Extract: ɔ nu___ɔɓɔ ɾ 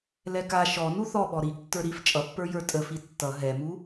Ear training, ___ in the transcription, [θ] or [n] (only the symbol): θ